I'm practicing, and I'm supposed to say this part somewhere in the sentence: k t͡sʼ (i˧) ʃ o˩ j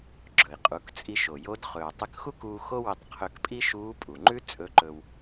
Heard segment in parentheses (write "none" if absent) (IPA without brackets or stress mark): i˧